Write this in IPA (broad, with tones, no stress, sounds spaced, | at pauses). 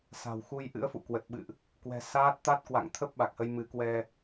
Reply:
s a̤˨˩ w x u˧ j ʔ ɨ̰˧˥ ə̯ f ṵ˧˨ k w ə˨˩ t̚ ɓ ɨ̰˧˨ ʔ | k w ɛ̤˨˩ s aː˦˥ t̚ t̪ a˦˥ t̚ k w a̰˧˨ ŋ t̪ʰ ə˦˥ p̚ ɓ a˨˩ k̚ h ə˧ j m ɨ˨˦ k w ɛ˧